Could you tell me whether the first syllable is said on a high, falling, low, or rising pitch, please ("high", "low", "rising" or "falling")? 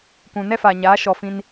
low